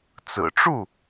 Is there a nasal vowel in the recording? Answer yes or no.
no